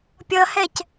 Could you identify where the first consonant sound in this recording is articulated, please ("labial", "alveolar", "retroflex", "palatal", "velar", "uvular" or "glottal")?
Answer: labial